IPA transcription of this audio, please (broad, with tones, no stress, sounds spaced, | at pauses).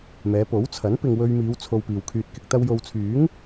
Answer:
m ɛː˨˧ p o˨˥ w t͡sʰ ɐ˨˥ n p ɪ˨ ŋ w ɵ˧ ɥ m iː˨˧ w t͡sʰ o˧ w p iː˨ w kʰ yː˧ t̚ k ɪ˨˥ k̚ t̪ ɐ˧ w j o˨ w t͡sʰ yː˨˥ ŋ